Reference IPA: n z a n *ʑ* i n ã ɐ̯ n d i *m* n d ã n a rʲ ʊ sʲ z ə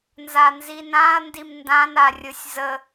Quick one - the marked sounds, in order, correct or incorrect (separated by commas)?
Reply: incorrect, correct